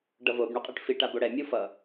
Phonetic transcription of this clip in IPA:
ɖ ʌ v o b ɳ u qʼ ɯ ʈ f i ʈ a b o ɽ ɛ mʲ u f ʌ

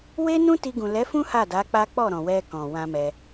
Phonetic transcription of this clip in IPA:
w e˦ n ũ˦ t i˧ ɡ ũ˨ l ɛ˨˦ f ũ˦ h a˦˨ d a˨˦ k͡p a˦ k͡p ɔ˦˨ ɾ ɔ̃˨ w ɛ˧ k ɔ̃˨ w ã˧ m ɛ˧

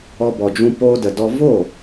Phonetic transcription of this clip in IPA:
ɔ˧ b ɔ˨ d͡ʒ ũ˧ p o˧ d ə˨ d ɔ˧ v o˦˨

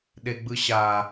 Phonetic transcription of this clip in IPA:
ɗ e ɡ͡b ɯ ɕ a

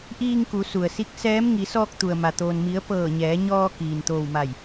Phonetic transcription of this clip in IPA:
ʔ iː˧ ŋ k u˩˧ s u˩ ə̯ s i˧˥ k̚ s ɛː˧˥ m ŋ i˩˧ s ɔː˧ k̚ t̪ u˩ ə̯ m a˩ t̪ oː˩ n m i˩˧ ə̯ p ɤː˧˩ ɲ ɛː˩˧ ɲ ɔː˧ k iː˩ n t̪ oː˧˩ w m a˧˩ j

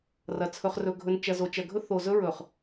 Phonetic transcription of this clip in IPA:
r ɐ˨ t͡sʰ ɵ˨ χ r ɵ˨ ɡʱ ɵ˨ n t͡ʃ ɐ˨ z o˨ t͡ʃ ɐ˨ ɡʱ ɵ˦ θ o˨ z ɵ˦ ɹ ɵ˨ χ

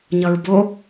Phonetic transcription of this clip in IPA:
ɲ ʌ ɹ b o

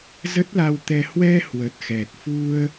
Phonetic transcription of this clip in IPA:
z ə˦˥ t̚ l a˧ w t̪ ɛ˧ h w ɛ˧ h w ə˨˩ t̚ x ɛ˨˩ t̚ f u˧ ə̯

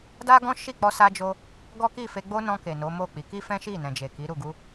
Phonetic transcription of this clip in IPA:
d a˦ ɡ ɔ̃˦ ʃ i˦˨ k͡p ɔ˧ s a˧ d͡ʒ o˧ | ɡ ɔ˦ k i˦˨ f e˧ ɡ͡b o˦ n ɔ̃˧ k e˨ n o˨˦ m o˦˨ k͡p i˨˦ k i˦ f ɛ̃˦ ʃ i˦˨ n ɛ̃˨ d͡ʒ e˨ k i˨˦ ɾ u˦˨ ɡ u˧

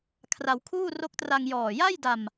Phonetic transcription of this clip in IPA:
kʰ r a˧ w kʰ uː˥˩ r o˦˥ k̚ t r a˧ ŋ j ɔː˨˩ j a˥˩ j d a˧ m

